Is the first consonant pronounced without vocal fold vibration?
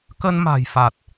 yes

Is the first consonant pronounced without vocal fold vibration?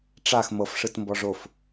yes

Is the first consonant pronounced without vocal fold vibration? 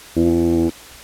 no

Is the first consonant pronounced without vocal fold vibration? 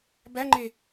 no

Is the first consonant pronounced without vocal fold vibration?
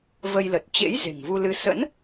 no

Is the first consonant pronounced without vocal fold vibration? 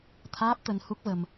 yes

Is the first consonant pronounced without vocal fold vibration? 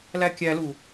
no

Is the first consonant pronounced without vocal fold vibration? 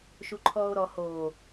yes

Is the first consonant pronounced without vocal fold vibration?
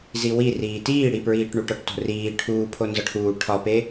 no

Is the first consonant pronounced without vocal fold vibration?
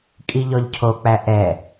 yes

